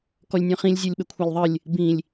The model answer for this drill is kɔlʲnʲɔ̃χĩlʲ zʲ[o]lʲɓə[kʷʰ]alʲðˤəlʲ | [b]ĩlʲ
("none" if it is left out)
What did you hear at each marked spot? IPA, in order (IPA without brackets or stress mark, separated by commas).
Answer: o, kʷʰ, b